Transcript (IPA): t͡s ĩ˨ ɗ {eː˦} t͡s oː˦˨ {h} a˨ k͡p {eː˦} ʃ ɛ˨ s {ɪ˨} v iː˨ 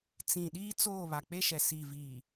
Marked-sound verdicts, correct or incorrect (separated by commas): incorrect, incorrect, incorrect, incorrect